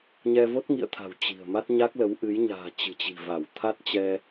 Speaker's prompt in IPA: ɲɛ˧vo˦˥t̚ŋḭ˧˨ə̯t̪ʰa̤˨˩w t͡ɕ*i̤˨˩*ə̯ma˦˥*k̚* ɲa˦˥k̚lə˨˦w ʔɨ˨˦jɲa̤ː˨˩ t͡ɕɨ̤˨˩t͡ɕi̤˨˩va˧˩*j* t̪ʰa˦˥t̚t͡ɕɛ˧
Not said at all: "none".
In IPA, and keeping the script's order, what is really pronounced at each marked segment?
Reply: i̤˨˩, t̚, w

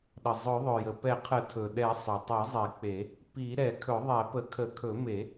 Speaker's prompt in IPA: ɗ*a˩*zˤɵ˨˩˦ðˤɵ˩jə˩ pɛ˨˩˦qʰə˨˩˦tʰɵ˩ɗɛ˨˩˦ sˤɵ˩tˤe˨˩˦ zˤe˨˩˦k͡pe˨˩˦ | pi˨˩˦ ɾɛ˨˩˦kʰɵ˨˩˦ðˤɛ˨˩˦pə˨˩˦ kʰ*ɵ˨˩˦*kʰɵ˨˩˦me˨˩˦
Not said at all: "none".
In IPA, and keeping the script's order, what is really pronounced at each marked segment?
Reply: ə˩, ə˨˩˦

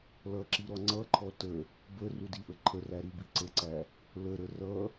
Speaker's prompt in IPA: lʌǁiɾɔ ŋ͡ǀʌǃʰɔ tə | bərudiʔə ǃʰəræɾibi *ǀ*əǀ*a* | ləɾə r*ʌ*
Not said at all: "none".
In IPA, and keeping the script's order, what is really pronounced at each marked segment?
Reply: ǀ, æ, ʌ

